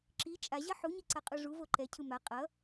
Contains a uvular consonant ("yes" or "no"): yes